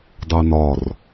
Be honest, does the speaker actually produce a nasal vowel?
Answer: no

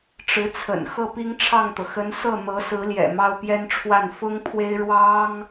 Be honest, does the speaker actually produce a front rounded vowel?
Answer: no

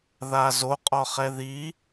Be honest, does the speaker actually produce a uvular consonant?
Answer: yes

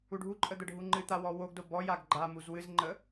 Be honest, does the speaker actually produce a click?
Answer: yes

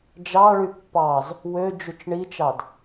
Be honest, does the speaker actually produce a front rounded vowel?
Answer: yes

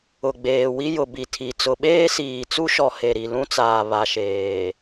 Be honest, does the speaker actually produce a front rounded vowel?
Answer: no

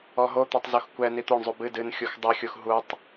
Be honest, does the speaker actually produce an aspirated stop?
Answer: no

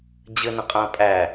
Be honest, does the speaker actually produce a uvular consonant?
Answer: yes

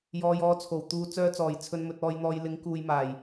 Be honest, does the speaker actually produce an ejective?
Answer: no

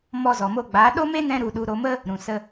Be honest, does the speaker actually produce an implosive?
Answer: yes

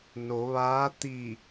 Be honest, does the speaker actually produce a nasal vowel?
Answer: no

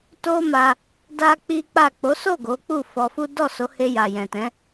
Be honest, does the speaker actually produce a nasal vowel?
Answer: yes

